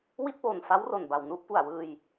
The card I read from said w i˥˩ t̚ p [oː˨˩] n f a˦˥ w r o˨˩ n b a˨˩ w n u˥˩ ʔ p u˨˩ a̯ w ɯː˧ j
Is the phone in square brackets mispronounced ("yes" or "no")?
no